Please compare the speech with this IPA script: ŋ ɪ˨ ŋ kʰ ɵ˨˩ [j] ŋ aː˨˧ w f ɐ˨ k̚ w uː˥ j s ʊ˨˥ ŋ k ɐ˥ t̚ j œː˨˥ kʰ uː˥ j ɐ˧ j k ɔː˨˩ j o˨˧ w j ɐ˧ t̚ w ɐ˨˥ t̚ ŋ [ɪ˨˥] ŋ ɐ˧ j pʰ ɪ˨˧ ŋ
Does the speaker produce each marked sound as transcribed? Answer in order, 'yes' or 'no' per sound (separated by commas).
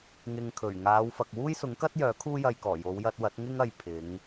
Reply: no, no